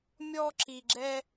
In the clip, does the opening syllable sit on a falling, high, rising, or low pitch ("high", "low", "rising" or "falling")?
high